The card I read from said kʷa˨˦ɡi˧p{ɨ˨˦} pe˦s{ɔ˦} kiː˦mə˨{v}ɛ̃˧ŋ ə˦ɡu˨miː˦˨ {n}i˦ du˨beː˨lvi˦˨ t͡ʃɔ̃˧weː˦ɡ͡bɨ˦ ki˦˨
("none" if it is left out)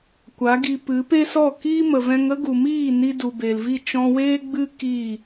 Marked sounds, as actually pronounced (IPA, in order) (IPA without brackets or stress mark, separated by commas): ɨ˨˦, ɔ˦˨, v, n